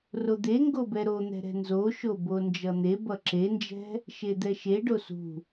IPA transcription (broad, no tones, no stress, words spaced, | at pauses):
rod̪eŋɡobɛ ɾon̪ɛ̤ɾɛ̤ nzoʃo bond͡ʒʌn̪e bʌǁend͡ʒɛ̤ | ʃed̪ɛʃe ɖosṳ